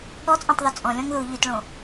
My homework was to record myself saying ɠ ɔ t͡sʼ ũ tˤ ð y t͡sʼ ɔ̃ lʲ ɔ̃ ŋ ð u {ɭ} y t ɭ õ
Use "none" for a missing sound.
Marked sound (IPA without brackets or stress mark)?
ʎ